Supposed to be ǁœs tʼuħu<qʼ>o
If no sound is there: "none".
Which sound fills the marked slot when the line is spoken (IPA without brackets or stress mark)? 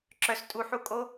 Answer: kʼ